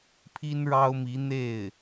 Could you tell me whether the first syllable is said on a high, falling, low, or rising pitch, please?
high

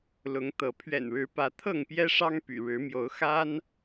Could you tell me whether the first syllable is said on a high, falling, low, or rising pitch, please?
rising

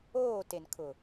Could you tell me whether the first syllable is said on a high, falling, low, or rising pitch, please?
falling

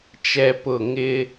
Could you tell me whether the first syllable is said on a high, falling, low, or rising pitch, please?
high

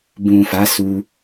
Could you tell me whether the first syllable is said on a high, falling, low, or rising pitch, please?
low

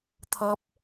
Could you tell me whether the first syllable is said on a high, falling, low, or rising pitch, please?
high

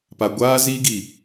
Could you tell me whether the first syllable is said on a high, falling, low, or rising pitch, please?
low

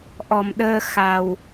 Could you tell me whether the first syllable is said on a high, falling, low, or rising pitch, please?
low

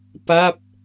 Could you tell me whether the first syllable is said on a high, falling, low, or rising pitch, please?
falling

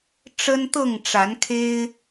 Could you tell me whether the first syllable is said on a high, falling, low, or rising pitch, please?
high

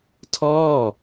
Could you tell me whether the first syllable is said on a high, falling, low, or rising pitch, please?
falling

